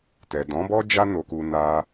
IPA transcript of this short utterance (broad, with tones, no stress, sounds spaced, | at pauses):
t ɛ˨ d ɔ̃˨˦ b ɔ˦ d͡ʒ a˦ n o˧ k u˧ n a˦